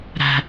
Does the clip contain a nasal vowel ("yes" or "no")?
no